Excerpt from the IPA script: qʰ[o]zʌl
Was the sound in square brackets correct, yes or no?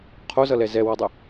yes